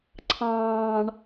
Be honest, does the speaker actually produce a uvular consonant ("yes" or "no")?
no